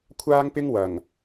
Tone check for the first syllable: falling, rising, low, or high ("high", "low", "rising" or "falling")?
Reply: high